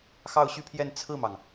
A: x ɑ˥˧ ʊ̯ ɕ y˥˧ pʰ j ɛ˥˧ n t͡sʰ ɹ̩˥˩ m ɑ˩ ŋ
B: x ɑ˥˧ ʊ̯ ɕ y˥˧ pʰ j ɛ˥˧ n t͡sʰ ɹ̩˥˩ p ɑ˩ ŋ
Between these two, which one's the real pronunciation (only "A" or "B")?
A